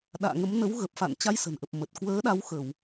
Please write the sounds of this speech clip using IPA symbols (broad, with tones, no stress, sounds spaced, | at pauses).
ɗ a̰ː˧˨ ŋ ə˨˦ m n ə˨˦ w ɣ ə˨˩ p̚ f a̰˧˨ n t͡ɕ a˧ j s ə̤˨˩ n ʔ ə˨˩ p̚ m ə˨˩ t̚ k w əː˨˦ ɗ a˨˦ w x ə˧˩˨ w